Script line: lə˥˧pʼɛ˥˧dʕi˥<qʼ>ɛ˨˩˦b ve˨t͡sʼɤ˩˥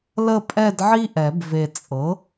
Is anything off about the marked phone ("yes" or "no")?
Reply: yes